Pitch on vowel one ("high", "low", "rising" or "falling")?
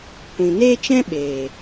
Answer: low